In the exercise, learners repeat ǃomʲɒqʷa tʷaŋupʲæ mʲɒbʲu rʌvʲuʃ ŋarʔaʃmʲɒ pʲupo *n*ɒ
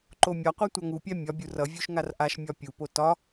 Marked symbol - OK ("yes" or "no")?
no